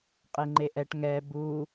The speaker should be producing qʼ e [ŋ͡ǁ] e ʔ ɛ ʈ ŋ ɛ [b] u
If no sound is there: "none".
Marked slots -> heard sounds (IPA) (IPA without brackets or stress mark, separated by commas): ŋ͡ǃ, b